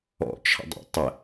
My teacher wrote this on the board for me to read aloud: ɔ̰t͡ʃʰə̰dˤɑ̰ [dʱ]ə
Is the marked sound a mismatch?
yes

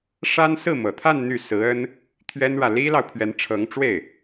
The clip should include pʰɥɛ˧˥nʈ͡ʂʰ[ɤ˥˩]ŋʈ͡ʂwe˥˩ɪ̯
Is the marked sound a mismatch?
yes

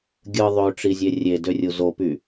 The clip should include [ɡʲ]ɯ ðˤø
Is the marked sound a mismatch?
no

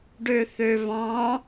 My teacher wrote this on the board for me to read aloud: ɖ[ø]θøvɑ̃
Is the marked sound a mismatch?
no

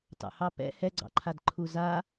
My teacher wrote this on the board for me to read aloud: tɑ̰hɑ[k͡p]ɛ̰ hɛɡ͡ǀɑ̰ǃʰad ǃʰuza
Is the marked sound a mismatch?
yes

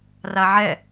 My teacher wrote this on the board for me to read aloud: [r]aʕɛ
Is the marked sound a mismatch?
no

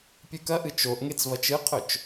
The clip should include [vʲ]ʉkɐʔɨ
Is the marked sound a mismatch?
yes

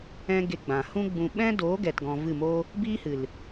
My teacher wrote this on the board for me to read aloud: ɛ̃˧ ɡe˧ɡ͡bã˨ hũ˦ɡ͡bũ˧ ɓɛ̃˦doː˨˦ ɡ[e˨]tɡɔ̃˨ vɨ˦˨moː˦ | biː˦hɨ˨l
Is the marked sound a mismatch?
yes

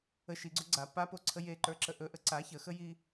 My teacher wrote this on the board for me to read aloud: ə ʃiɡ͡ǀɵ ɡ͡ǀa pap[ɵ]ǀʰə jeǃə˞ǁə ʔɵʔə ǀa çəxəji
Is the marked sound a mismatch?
yes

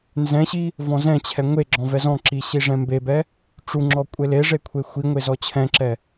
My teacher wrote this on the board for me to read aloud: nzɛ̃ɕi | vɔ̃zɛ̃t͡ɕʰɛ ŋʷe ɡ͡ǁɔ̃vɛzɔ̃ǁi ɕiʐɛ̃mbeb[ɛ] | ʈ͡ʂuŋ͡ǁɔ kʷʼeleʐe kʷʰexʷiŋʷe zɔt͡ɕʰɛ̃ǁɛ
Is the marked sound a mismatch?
no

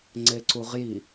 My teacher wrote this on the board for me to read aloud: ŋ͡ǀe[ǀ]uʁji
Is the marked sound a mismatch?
no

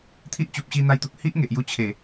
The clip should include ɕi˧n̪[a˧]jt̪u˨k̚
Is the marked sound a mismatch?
no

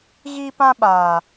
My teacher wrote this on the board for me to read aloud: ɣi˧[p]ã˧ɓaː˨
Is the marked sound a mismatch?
no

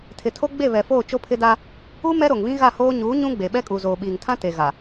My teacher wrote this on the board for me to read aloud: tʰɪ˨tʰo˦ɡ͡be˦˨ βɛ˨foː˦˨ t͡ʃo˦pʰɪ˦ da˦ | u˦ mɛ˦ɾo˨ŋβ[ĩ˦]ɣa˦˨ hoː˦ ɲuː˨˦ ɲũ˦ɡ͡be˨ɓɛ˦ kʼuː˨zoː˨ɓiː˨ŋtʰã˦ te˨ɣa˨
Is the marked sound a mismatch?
no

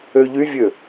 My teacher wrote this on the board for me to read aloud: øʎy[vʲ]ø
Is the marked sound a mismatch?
no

